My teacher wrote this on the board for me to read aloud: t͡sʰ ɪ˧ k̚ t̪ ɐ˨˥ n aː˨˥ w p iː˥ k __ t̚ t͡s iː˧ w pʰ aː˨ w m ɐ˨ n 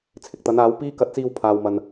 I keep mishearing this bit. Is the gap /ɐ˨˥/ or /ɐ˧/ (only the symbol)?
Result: ɐ˨˥